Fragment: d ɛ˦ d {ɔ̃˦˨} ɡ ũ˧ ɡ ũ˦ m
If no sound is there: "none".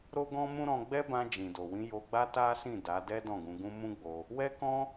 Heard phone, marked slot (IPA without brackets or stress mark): ɔ̃˦˨